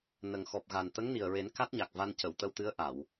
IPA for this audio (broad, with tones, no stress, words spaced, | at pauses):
nə˨˩ŋ xɔ˨˩p̚ɣa˨˩n t̪ə˧˥ŋni˨˩ə̯ɹe˨˩˦n ka˦˥t̚ɲa˨˩k̚ va˧ncə˨˩˨wt̪ə˧wt̪ɨ˧˥ə̯ ʔa˨˩˨w